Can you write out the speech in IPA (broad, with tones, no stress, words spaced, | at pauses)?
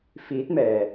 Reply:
fiː˧˥t̚mɛː˩